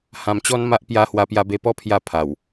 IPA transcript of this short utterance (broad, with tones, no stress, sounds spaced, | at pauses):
h ã˧ m t͡ɕ ɔ˦ n m a˦ ʔ p j a˧ h w a˧ p j a˧ b e˧ p ɔ˦ pʰ j a˥˧ pʰ a˨˩ w